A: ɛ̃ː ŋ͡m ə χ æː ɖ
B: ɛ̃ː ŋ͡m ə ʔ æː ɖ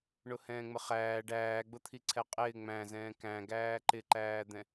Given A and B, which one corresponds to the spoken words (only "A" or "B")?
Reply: A